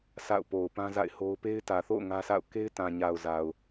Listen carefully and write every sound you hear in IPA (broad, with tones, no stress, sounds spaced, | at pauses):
s a̰˦˨ ʊ̯ p o˨ ʊ̯ p ã˦ z a̰˦˨ ɪ̯ h o˦ ʊ̯ p e˦ ɪ̯ t ä˨ θ o̰˦˨ ʊ̯ ŋ ä˦ s a̰˦˨ ʊ̯ k e˦ ɪ̯ t ã˨ ɲ a˨ ʊ̯ z a˨ ʊ̯